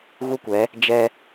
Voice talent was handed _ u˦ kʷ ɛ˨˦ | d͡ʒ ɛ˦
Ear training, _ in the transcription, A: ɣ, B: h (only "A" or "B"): A